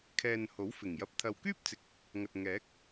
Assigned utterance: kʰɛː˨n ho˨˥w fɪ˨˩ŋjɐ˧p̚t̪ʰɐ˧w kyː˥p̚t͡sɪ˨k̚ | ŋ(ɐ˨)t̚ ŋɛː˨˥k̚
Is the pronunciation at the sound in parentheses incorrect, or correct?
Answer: correct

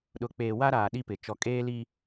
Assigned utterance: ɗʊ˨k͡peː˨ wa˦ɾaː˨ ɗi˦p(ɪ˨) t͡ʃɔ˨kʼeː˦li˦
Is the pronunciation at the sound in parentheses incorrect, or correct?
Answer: correct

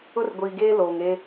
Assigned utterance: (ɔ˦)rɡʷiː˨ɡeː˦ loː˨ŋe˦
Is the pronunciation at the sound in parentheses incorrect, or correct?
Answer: incorrect: ʊ˦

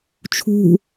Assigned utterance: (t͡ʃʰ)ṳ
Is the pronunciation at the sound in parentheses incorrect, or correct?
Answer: correct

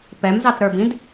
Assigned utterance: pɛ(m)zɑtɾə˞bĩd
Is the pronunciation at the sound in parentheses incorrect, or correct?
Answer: correct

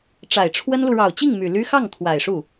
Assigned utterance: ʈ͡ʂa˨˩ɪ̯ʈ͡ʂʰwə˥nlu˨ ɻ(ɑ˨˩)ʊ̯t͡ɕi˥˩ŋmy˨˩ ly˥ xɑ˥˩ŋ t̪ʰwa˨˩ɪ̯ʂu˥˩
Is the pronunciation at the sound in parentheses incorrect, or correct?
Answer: correct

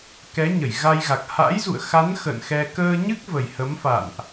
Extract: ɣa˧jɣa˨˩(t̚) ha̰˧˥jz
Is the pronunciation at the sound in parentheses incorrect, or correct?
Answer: incorrect: k̚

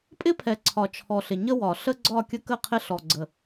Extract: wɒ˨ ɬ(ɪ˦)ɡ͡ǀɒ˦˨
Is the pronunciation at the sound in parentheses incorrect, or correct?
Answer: incorrect: ə˦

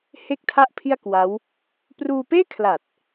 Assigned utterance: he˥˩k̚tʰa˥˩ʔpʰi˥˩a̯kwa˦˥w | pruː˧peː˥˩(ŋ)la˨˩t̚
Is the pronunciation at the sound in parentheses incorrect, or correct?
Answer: incorrect: kʰ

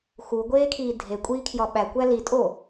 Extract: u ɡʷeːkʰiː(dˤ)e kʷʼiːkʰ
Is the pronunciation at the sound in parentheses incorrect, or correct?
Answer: incorrect: dʱ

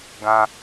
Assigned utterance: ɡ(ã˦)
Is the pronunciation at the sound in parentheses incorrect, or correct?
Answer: correct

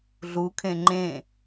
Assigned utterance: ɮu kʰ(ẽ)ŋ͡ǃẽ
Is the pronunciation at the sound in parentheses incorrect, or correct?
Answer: correct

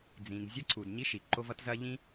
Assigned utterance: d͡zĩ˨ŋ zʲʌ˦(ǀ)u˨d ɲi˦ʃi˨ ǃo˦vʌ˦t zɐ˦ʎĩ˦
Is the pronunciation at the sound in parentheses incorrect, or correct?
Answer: correct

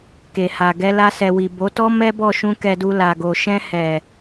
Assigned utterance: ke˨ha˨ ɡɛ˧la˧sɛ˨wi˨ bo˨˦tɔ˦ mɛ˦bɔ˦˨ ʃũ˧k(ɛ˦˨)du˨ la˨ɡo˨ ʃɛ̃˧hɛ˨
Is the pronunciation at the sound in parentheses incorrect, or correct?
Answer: incorrect: ɛ˨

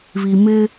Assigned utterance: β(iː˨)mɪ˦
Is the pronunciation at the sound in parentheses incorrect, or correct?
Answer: incorrect: i˨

